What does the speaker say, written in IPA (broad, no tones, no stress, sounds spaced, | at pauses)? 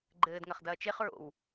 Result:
ɡ͡ǃ ɘː d ŋ ɐ χ d ɐː t͡ʃ e χ ɹ o̰ w